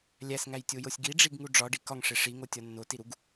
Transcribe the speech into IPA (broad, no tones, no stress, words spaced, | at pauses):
lʲæsŋæjtʲojosʲ ɡiɖ͡ʐiɡŋu ɖ͡ʐɒɖi kɒŋʂe ʂiŋotʲɒ nːotiɾuɡ